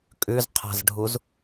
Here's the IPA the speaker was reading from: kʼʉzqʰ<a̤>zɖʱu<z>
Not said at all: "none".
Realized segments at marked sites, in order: a̤, z

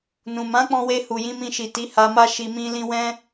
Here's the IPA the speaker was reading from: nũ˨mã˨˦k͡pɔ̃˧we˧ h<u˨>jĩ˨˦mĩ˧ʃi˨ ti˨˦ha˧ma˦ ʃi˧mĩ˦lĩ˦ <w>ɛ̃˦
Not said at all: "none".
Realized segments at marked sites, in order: u˨, w

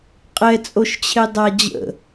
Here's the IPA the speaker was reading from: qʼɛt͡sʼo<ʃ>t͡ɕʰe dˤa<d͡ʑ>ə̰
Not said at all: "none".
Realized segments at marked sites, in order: ʃ, d͡ʑ

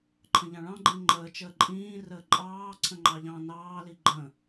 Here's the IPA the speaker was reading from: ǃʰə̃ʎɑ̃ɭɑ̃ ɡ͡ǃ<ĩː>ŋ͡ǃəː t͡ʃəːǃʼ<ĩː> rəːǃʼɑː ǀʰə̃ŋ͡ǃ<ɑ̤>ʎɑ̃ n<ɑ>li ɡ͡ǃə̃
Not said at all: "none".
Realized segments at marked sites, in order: ĩ, ĩː, ɑ, ɑː

